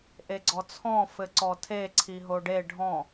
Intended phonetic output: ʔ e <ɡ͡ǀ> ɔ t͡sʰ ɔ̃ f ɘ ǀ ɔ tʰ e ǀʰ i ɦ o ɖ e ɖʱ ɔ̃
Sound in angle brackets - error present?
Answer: no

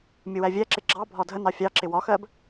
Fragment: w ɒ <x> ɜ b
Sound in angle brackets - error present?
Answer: no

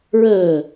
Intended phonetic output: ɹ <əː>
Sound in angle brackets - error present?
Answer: no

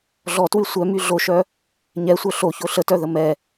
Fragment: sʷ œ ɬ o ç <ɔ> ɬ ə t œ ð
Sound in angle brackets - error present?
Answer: yes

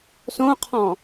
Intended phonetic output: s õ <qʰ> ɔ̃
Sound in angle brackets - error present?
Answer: no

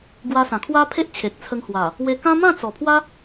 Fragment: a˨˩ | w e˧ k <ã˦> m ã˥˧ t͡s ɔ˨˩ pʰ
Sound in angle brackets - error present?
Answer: no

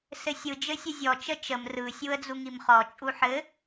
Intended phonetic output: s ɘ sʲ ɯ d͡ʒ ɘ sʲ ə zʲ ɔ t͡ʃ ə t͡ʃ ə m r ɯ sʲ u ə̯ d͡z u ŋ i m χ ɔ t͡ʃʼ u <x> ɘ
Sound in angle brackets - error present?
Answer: yes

